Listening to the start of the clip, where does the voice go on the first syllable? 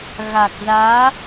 low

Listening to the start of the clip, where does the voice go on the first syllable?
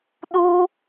high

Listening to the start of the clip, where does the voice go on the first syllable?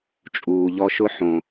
low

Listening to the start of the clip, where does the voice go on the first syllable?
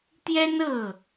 high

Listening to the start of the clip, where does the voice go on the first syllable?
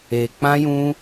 low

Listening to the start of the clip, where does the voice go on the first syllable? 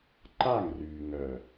falling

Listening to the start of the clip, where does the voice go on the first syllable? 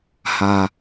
low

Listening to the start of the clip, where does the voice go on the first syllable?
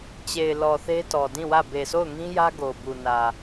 low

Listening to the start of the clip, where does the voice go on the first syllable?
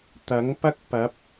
rising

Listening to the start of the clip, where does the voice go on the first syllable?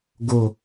low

